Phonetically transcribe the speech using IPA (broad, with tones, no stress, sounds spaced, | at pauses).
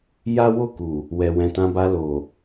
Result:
j a˦ w o˦˨ k u˨ | w ɛ˨ w ɛ̃˨ t ã˧ b a˧ l o˨